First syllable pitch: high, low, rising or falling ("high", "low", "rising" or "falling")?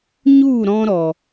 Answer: falling